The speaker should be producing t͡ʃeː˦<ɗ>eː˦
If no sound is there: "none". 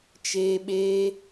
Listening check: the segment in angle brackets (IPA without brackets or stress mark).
ɓ